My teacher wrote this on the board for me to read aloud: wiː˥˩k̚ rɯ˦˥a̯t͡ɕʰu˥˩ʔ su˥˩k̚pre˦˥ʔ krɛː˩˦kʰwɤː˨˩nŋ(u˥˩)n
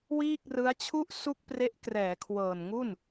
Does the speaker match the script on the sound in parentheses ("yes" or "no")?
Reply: yes